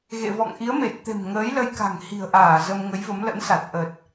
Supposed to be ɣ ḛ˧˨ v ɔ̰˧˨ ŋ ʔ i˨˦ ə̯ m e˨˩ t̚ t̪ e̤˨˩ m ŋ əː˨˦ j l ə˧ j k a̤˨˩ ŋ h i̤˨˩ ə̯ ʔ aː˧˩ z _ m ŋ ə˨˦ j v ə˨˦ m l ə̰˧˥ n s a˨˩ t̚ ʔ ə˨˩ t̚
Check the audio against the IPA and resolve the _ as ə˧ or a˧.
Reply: ə˧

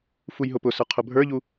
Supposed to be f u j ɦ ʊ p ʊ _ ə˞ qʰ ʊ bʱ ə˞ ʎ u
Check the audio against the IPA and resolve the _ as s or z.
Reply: s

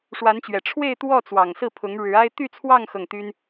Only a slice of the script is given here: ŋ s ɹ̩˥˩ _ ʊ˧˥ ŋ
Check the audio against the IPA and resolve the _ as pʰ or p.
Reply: pʰ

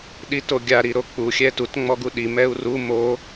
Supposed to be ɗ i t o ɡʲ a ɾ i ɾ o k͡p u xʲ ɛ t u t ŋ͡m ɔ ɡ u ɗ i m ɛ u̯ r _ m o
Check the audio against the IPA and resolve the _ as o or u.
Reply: u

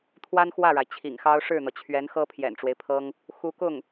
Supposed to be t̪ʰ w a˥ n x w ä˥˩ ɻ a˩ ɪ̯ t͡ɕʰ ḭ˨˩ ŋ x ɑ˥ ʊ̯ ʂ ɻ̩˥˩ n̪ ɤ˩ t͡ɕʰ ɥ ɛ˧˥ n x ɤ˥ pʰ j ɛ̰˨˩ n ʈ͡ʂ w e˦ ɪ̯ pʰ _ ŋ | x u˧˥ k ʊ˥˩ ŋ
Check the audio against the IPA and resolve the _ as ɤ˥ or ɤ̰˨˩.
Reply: ɤ˥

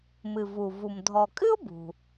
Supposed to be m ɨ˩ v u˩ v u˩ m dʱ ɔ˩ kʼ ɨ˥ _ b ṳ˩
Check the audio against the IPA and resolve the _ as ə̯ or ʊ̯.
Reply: ʊ̯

